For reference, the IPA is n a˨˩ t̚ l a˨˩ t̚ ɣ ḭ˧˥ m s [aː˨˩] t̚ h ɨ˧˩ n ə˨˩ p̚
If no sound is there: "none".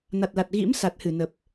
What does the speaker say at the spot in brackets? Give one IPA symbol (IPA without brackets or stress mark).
a˨˩